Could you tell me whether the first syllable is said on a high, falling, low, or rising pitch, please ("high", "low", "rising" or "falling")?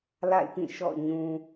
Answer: falling